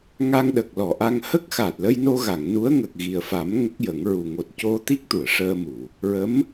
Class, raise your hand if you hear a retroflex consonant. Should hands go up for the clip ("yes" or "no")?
yes